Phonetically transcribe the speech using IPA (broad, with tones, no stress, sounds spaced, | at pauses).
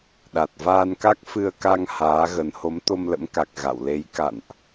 ɗ a˨˩ t̚ v aː˧ n k a˦˥ k̚ f ɨ˧ ə̯ k a˧ ŋ h aː˨˦ ɣ ə˨˦ n h o˨˦ m t̪ o˧ m l ə̰˧˥ m k a˨˩ k̚ ɣ a̰˧˨ w l e˨˦ j k a̰˧˨ n ʔ